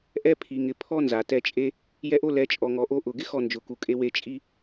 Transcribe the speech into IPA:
ʔ ɛ˦ pʰ i˨ ŋ ɪ˨ pʰ ɔ˦ n z a˨ t ɛ˧ t͡ʃʼ e˦ | j ɛ˦ ʔ o˦ l ɛ˨˦ t͡ʃʼ ɔ˧ ŋ ɔ˧ ʔ o˧ ʔ ʊ˨ ɡ ɪ˦ x ɔ˦˨ n d͡ʒ ʊ˨ k u˨ kʼ e˧ w e˧ t͡ʃʼ i˦

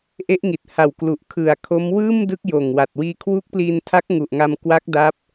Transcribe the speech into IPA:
ʔ e˦˥ ʔ ŋ i˨˩ t̚ h a˨˩ w k l u˨˩ ʔ kʰ ɯ˨˩ a̯ kʰ o˦˥ m w ɯː˥˩ m d ɯ˦˥ k̚ j oː˨˩ ŋ w a˨˩ t̚ w iː˧ kʰ w u˦˥ k̚ p l iː˧ n tʰ a˦˥ k̚ ŋ u˨˩ ʔ ŋ a˧ m k w a˦˥ k̚ d a˦˥ p̚

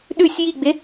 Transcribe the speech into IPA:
ɗ ʉ sʲ j i ɡ͡b e

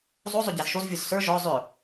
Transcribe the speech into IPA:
zˤ o zˤ ʏ ɟ æ z ʃ o z vʲ ʊ z s ə˞ ʒ ɔ zˤ ʏ

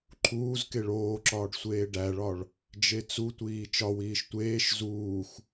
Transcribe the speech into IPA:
ǃʰ uː z k e ɭ oː ǁ ɒː ɖ sʷ eː ɖ æ ɭ ɒ ɭ | d͡ʒ e t͡s u tʷ iː t͡ʃ ɒ w iː ʃ tʷ eː ʃ z uː x

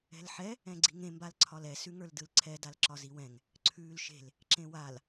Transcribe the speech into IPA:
ɛ̤ l ħ ɛ | ɛ̃ ɡ͡ǀ i̤ ŋ ẽ m b a l ǀʰ ɒ l ɛ s ʉ ŋ ə˞ l d ɯ l ǀʰ ɛ d a l ǁ ɒ z i w ɛ̃ ŋ | ǀʰ ʉː l ʃ e̤ l | ǁ ẽ w a l

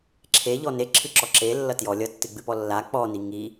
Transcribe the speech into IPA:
ǁʰ e ʎ ɔ n e ǁʰ ɨ ǁ ɔ ǁ e lː ʌ t j ɔ lʲ ʌ tː ɨ ɡ͡b ɨ p ɔ lː a k͡p ɔ n i ŋ i

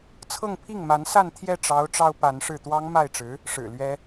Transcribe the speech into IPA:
t͡sʰ ɤ˥˧ ŋ pʰ i˥˩ ŋ m a˧˥ n s a˥˧ n t̪ʰ j ɛ˥˩ ʈ͡ʂ ɑ˧˥ ʊ̯ ʈ͡ʂ ɑ˥ ʊ̯ p a˧˥ n ʂ ɻ̩˥˩ t̪ w ɑ˥ ŋ m a˥˩ ɪ̯ ʈ͡ʂ ɻ̩˧˥ | ʂ ɻ̩˨˩ l ɥ ɛ˥

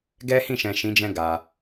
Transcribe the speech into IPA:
ɡ ɛ˦ h ĩ˦˨ ʃ ɛ̃˨ ʃ ĩ˨˦ d͡ʒ ɛ̃˧ ɡ a˨

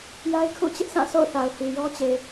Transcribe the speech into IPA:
j a˦ ɪ̯ kʰ ṵ˦˨ t͡ɕ ɪ˦ ʔ sʰ ã˦˨ sʰ o̰˦˨ ʊ̯ θ a˨ ʊ̯ h i˨ j ɔ˦ t͡ɕ e˨

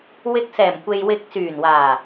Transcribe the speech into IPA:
w ɪ˧ k̚ s ɛː˨˩ m kʷ e˨ j w ɪ˨˥ k̚ s yː˨˩ n w aː˨˩

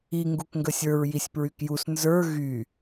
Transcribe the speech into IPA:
i ŋ ɡ u k ŋ ɡ ə sʲ ə˞ ɹ j i sʲ p ɹ y k j u s n z ə˞ ɣ y

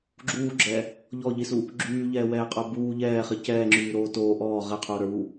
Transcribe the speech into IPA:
ɡ͡ǁ uː ɡ͡ǁ ɛ | ʎ ɔ ʎ i s u | ɡ͡ǁ yː ʎ ɛː w ɛː qʼ ə˞ b uː ʎ ɛː χ i c ɛː ŋ͡ǁ yː ɾ oː t oː ʔ ɔː ʁ ɛ qʰ uː ɾ ə˞ w u

